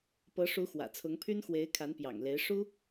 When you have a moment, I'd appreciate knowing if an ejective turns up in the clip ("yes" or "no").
no